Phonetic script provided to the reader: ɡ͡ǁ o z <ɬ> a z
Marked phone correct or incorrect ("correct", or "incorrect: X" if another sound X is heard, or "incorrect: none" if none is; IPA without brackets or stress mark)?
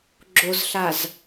correct